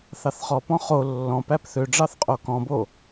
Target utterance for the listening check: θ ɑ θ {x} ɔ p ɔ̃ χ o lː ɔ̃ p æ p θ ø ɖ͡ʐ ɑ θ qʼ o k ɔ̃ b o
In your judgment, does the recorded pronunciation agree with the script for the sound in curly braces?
no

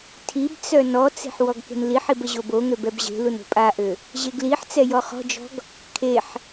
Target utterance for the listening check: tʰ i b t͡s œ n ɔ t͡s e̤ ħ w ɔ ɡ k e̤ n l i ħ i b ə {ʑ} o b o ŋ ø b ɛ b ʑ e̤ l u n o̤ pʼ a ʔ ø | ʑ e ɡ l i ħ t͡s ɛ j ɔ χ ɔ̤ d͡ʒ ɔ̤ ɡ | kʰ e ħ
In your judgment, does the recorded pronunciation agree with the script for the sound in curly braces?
yes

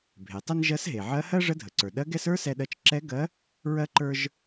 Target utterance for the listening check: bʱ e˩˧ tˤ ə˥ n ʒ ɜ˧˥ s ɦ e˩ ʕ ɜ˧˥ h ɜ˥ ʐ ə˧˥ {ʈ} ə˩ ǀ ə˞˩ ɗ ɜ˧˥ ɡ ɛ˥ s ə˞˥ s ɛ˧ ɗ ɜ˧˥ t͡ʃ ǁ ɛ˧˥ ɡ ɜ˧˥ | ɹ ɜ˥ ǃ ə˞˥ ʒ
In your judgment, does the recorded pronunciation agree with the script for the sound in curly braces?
no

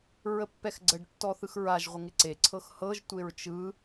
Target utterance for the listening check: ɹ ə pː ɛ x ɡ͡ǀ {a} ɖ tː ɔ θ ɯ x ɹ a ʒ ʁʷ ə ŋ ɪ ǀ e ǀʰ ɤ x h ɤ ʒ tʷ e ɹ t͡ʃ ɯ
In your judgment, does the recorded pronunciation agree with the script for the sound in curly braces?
no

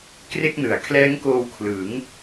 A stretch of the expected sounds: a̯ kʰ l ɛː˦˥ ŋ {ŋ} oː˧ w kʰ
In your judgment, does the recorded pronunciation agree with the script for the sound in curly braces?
no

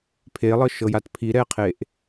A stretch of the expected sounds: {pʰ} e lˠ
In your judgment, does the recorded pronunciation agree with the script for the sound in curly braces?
yes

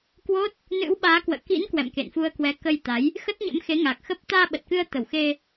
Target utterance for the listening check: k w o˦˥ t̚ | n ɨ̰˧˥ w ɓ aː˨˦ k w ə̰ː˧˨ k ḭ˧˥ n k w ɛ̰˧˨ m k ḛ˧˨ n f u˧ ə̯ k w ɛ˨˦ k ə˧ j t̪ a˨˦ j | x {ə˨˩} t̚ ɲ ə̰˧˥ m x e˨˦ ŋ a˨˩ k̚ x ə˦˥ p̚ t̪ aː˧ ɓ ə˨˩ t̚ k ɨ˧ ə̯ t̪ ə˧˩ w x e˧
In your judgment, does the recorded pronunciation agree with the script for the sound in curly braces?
no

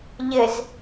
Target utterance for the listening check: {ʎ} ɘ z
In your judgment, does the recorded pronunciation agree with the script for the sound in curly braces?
yes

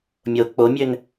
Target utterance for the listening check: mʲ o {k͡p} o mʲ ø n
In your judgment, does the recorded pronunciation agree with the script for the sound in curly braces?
yes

